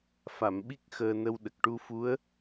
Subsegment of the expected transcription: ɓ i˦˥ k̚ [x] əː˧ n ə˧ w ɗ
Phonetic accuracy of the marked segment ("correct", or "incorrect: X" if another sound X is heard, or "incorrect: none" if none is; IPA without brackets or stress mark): correct